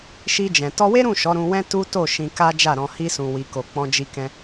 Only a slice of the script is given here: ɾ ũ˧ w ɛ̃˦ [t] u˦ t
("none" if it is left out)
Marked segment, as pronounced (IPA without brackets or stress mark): t